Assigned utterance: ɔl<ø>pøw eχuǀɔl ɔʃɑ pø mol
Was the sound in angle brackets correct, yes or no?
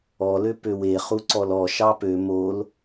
yes